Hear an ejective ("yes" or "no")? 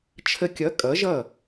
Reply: yes